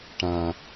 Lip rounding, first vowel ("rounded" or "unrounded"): unrounded